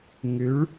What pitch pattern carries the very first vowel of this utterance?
rising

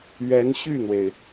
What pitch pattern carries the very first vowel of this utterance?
rising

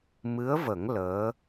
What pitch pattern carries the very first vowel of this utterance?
rising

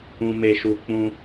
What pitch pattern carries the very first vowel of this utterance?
low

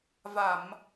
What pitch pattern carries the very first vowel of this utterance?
low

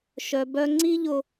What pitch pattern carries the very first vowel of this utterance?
low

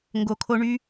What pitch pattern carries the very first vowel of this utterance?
low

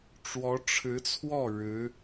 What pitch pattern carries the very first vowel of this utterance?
rising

